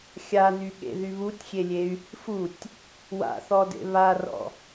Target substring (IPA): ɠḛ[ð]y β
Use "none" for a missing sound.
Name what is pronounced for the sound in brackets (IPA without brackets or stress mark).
ð